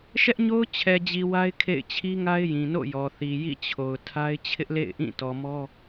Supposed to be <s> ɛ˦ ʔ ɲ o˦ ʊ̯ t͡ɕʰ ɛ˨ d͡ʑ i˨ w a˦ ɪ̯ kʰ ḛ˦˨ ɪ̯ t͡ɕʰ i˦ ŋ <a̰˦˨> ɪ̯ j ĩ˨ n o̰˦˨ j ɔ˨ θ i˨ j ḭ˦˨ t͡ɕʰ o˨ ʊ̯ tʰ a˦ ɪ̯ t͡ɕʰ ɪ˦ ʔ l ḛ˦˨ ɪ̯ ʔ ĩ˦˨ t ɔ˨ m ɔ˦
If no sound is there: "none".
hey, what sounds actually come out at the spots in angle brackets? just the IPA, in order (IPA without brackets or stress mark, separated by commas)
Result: ʃ, a˦